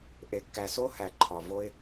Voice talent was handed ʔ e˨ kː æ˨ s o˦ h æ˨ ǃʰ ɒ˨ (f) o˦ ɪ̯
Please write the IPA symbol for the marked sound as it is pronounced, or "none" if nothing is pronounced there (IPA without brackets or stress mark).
v